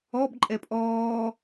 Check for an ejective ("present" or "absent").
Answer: present